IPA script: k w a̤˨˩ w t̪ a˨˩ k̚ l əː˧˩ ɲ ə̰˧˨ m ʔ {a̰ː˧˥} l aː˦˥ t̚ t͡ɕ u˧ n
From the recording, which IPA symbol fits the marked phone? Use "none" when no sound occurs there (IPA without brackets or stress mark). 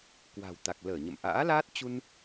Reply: a̰ː˧˥